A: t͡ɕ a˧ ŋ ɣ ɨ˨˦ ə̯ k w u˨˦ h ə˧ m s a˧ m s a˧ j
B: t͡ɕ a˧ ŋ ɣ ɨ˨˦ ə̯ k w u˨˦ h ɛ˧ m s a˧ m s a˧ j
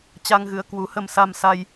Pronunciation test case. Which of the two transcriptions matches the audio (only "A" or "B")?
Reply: A